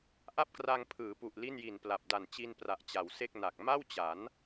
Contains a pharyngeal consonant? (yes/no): no